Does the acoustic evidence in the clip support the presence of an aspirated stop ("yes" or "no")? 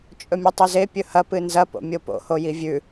no